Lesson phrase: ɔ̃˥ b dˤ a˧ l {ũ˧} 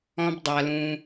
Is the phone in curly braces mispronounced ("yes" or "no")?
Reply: no